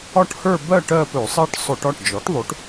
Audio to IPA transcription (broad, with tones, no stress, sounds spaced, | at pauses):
ɒ˥˧ ʈ h ə˞˥˧ b ɜ˥˧ ʈ ɜ˥˧ p ɵ˧˩˧ sˤ ɜ˥˧ ʈ sˤ ɵ˧˩˧ ʈ ɒ˩˧˩ ʈ d͡ʒ ɔ˩˥ ʈ ðˤ o˩˥ ʈ